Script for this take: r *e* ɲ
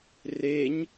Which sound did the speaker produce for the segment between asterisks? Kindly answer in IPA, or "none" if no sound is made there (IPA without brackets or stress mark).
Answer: e